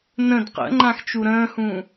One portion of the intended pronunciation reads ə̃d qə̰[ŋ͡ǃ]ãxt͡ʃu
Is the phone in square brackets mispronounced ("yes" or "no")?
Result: no